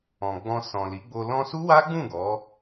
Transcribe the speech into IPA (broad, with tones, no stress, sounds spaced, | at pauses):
ɔ̃˨ ɡ͡b ɔ̃˧ s ɔ̃˨ l i˨˦ ɡ͡b o˧ l ɔ̃˧ s u˦ w a˦ ɡ͡b ũ˦˨ ɡ ɔ˨˦